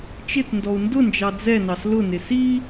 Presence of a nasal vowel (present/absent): absent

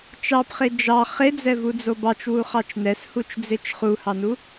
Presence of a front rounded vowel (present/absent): absent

